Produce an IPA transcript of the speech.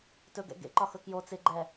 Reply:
t ɵ ɡ ɛ̰ ɡ ḛ ǃ ɒ x ɵ k j o t͡s ɪ ɡ͡ǃ ɛ

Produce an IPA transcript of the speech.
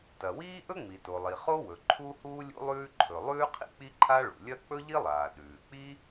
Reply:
t ɐ˩ w iː˥ ʔ ɵ˥ ŋ͡m i˩ t o˩ lˠ i˩ χ o˥ w ɵ˩ ǃʰ u˥ h uː˥ lʲ ṵ˥ lˠ ʉː˥ ǃʰ ɵ˩ lˠ ʉː˥ qʰ ḭ˥ k͡p i˥ ǃʰ a˥ ɭ ṵ˩ lʲ ɐ˥ k͡p ɵ˥ ʎ i˥ lˠ aː˩ ɗ ʉː˩ k͡p i˥

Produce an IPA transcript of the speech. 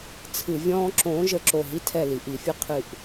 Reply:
t͡sʰ ɨ˧˩˧ vʲ ɔ̃ː˦ ǁ õː˨˥ ʒ ə˧˩˧ ǁ o˧˩ ɦ i˦ tʰ ɛ˧˩ l i˩ ʔ i˧˩˧ fʲ ɨ˦ qʰ ɨ˧˩ ʔ

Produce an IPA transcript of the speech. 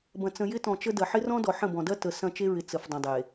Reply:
b ɐ̃˨ t͡s ə̃˨ j ɪ˦ t ɔ̃˨ t͡ʃ ə˦ d ɐ˨ ħ ɪ˦ r ɔ̃˦ d ɔ˨ ħ ə̃˦˨ b ɔ̃˨ d ɐ˦ t ə˨ s ɐ̃˦˨ t͡ʃ e˦ ɹ ɪ˨ t͡s ə˨ f dˤ ə̃˨ dˤ e˨

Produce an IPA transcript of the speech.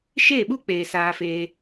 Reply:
ʃ eː˦˨ ɓ u˦ k͡p eː˨ s aː˧ f eː˧

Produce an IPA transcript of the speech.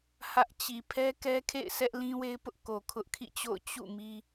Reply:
h ä˦ ʔ t͡ɕ i˨ pʰ ɛ˦ k ɛ˦ kʰ ḛ˦˨ ɪ̯ s ɛ˦ ʔ l ĩ˦ w e˦ ɪ̯ p ʊ˦ ʔ k o˨ kʰ ʊ˦ ʔ kʰ ḭ˦˨ t͡ɕ o̰˦˨ ʊ̯ t͡ɕ ṵ˦˨ m i˦

